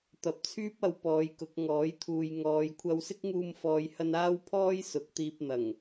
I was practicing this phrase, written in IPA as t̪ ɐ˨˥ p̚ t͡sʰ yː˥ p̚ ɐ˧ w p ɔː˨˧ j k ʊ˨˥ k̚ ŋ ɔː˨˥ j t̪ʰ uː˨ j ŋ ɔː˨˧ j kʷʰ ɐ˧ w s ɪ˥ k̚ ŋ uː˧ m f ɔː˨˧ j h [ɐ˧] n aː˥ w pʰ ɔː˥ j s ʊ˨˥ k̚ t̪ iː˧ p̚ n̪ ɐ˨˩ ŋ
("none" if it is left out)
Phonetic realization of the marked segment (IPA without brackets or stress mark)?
ɐ˧